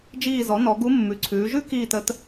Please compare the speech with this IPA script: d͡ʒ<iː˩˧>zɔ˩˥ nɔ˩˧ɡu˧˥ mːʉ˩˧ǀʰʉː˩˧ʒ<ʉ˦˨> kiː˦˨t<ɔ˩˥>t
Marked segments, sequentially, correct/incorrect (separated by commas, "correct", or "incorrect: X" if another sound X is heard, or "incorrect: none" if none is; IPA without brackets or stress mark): incorrect: iː˦˨, incorrect: ʉ˥, incorrect: ə˩˥